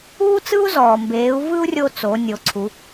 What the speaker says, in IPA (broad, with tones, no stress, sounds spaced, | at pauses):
uː˥ t͡s ɯ˥ u̯ z ɔː˩ m b eː˩˧ u̯ v ɯ˥ u̯ rʲ o˧ t͡s o˩˧ nʲ o˩˧ ǀʰ u˩˧